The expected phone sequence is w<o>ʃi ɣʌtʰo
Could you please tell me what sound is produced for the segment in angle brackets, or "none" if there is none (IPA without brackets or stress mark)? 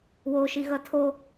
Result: o